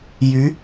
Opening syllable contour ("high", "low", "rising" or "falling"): rising